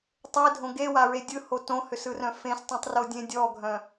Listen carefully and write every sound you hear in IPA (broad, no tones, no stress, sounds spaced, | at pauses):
tˤ e dʱ õ ɡ e w a ɹ e dʲ ɯ h o t õ h ʏ s ɯ r œ̃ f ẽ s tˤ œ̃ tˤ r o dʲ ẽ dʲ ɔ ɡʱ œ̃